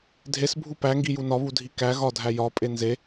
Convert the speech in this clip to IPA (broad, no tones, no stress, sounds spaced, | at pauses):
dʱ e s bʱ u p æ ŋ ɡ i j u n ɒ β u dʱ i k æ ɣ ɒ dʱ æ j ɒ pʼ e n z e